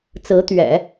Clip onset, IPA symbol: t͡s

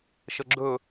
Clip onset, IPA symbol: ʃ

